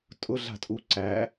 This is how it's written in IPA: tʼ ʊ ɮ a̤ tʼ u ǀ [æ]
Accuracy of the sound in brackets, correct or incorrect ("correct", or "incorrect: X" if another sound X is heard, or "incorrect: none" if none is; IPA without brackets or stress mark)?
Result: correct